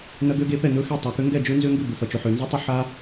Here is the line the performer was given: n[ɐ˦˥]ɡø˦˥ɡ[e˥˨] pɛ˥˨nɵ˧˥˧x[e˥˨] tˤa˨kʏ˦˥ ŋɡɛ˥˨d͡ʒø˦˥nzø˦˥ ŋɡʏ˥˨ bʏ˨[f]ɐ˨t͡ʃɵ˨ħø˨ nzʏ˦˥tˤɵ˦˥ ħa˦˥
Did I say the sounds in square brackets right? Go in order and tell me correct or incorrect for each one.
correct, incorrect, correct, correct

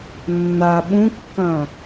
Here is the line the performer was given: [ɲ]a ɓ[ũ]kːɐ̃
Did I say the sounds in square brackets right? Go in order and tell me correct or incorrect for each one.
incorrect, correct

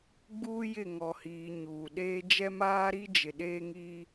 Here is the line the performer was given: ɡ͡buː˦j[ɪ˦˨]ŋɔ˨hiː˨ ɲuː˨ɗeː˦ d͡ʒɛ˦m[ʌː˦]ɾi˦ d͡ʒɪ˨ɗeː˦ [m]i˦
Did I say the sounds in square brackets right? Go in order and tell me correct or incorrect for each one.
correct, incorrect, incorrect

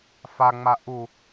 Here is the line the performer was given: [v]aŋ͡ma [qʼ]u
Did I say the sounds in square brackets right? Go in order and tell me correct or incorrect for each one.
incorrect, incorrect

